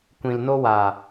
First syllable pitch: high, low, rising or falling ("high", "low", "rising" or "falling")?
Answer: low